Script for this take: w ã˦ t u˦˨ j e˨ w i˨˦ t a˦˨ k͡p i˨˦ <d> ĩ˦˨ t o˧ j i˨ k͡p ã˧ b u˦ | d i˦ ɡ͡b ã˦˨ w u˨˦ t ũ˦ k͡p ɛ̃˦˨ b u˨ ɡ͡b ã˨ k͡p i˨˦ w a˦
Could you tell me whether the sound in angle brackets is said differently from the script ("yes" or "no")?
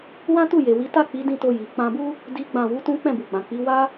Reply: no